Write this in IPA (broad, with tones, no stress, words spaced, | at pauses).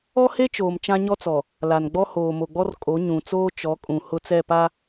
ɔ˦he˦t͡ʃoː˨m t͡ʃã˦ɲɔ˦t͡sɔ˨ | la˨nɡ͡bɔ˦ hoː˨mo˨ɡ͡bɔ˦r kʼo˨˦ɲũ˨t͡soː˦ t͡ʃɔ˨˦kʼũ˨ hʊ˦t͡sɛ˦˨ pa˦